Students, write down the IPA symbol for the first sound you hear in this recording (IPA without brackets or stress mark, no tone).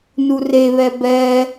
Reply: n